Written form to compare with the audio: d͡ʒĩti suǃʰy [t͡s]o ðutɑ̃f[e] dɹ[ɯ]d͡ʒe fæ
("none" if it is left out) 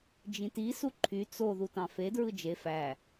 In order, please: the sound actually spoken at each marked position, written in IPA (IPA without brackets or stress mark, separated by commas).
t͡s, e, ɯ